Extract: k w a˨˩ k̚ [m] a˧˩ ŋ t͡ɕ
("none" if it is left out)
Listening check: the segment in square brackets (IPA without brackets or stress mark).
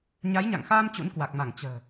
m